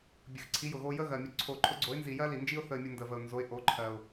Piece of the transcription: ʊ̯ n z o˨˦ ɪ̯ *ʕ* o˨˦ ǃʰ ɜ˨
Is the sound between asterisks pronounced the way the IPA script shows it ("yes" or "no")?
no